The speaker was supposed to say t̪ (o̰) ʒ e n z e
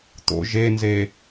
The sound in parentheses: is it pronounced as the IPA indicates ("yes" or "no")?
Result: yes